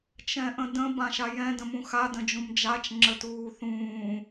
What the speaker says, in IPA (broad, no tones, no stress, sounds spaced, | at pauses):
t͡ʃ ɛ̃ ʔ ə̃ d ə̃ b ã ʃ a j ɛ̃ d ə̃ m ũ x a d ə̃ d͡ʒ ũ m d͡ʒ a t͡ʃ ŋ͡ǁ ə t uː θ ũː